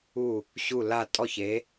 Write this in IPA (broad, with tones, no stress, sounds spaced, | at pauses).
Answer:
u˥˩ | ɕ u˥˩ l a˥˩ tʼ ɔ˥˩ ç e˩˥